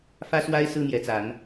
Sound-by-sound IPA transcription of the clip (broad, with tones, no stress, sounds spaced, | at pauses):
f ä˦ s w a˦ ɪ̯ s ɹ̩˦ n̪ j ɛ˨˦ t͡s a˨˦ n